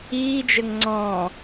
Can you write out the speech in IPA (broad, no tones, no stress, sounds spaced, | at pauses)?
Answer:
iː d͡ʒ ə ŋ ŋ͡ǀ ɔ̃